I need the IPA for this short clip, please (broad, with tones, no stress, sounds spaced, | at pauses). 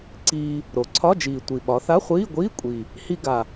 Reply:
ǀ iː˧ | ɾ o˩˧ ǀʰ ɒ˧˥˧ d͡ʒ iː˨˩ tʷ i˨˩ ɓ ɒ˩˧ θ a˧˥˧ χʷ iː˧˥˧ ɡʷ iː˧˥˧ kʷʼ i˨˩ | h i˧ ɡ a˨˩